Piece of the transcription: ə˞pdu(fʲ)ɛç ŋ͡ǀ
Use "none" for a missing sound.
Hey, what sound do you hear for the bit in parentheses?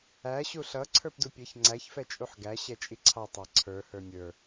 pʲ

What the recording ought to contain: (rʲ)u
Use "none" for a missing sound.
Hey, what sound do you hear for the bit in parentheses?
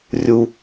rʲ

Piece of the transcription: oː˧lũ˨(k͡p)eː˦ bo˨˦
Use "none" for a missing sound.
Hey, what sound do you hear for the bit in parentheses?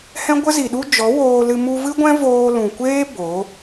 kʷ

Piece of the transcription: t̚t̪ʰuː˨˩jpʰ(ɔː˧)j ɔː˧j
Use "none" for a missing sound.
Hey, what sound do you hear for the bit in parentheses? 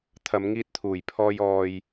ɔː˧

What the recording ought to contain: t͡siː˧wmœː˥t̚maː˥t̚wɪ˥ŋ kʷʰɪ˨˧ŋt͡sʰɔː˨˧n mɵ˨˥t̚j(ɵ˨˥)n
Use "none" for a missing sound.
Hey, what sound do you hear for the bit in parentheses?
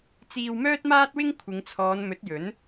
ɵ˨˥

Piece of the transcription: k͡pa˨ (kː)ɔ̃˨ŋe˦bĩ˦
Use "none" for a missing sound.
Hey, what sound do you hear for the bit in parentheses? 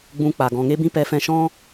ɡ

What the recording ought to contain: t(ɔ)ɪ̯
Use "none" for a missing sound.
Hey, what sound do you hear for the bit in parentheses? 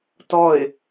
ɔ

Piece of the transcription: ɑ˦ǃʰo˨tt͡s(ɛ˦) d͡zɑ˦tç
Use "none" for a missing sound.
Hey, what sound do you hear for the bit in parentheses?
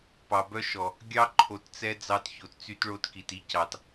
ɛ˦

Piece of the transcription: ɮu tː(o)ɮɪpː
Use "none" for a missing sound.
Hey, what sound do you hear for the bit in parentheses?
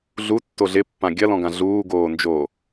o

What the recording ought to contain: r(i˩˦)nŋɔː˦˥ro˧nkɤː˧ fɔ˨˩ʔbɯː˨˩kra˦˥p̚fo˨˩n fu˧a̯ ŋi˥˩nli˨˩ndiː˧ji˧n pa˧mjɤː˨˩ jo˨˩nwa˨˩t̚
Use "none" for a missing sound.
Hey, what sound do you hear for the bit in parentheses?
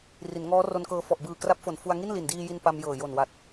i˩˦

